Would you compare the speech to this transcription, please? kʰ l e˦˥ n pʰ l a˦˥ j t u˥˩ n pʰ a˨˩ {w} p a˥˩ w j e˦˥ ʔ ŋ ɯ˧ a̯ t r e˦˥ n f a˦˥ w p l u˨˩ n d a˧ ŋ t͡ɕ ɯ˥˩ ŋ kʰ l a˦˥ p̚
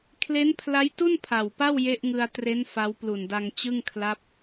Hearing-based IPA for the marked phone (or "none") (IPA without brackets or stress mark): w